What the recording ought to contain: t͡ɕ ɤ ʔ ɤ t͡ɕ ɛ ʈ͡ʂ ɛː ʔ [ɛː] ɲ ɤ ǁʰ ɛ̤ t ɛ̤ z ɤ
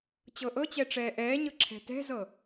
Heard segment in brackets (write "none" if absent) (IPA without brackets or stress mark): ɛː